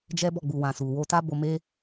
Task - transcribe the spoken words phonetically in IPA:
d͡ʒ ɛ˦ b ɔ˦˨ ɡ͡b u˨ w ã˨ s u˨ w o˧ t a˦ b o˧ m e˦

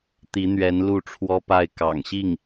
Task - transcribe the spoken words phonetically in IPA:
t̪ i˧˥ n̪ ɥ ɛ˧˥ n l u˥˩ ʈ͡ʂʰ w ɔ˥ p a˥˩ ɪ̯ k ɑ̰˨˩ ŋ ɕ i˥˩ ŋ

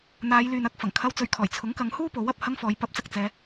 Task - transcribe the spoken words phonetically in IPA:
n̪ aː˨˧ j l yː˨ n ɐ˧ k̚ f ɐ˨˩ ŋ kʰ ɐ˧ w t͡s ɵ˧ ɥ kʰ ɔː˨˩ j t͡sʰ ʊ˨˥ ŋ k ɐ˨˧ ŋ h uː˥ p o˨˥ w ɐ˨ p̚ h ɐ˥ ŋ f ɔː˨˧ j p ɐ˨˥ p̚ t͡s ɐ˨ k̚ t͡s ɛː˨˧

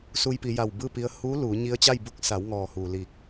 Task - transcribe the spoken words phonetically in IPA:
s u˧ j p i˩˧ j a˧˩ w b ɯː˥˨ p i˧ ə̯ h uː˧˥ l uː˩˧ ɲ i˧ ə̯ t͡ɕ a˥˨ j b u˧˥ k̚ s a˩˧ w ŋ ɔː˩ h uː˩ l i˧˩ k̚

